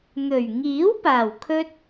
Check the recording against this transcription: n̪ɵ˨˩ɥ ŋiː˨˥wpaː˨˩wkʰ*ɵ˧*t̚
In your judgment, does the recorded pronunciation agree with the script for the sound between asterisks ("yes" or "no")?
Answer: yes